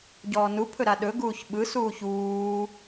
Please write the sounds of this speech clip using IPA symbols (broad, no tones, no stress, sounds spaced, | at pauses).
ɟ ɔː n u pʰ ɵ ɾ a ɗ ɵ ɡ uː ç ɓ ɯ s uː ç uː